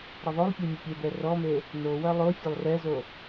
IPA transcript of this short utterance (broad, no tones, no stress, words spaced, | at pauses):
ɾɐðˤolˠpʲe mʲəpʲebɛ rɔme | nowɐ lˠo fʲɐlˠrɛzo